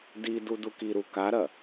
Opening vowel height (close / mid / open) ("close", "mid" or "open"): close